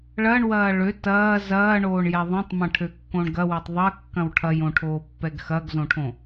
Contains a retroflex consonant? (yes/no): yes